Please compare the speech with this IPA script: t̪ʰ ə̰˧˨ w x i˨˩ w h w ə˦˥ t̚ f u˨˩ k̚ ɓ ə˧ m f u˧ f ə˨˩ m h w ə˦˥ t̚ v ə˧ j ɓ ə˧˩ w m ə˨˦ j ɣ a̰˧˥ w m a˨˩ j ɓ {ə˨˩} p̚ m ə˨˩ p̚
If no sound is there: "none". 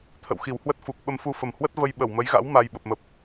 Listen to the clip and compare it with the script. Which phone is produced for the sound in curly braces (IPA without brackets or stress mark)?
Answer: ə˨˩